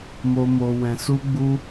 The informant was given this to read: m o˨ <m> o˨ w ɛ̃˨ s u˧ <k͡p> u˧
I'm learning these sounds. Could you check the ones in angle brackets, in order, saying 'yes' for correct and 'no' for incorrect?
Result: yes, no

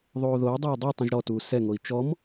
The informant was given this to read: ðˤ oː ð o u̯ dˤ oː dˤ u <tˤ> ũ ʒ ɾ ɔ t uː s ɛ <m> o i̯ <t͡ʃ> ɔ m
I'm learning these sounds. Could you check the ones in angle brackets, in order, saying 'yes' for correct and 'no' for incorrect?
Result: yes, no, yes

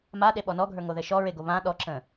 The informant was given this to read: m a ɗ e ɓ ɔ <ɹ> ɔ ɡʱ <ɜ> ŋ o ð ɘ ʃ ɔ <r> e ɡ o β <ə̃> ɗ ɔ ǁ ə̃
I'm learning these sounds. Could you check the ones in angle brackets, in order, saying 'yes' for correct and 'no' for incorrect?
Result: no, no, no, no

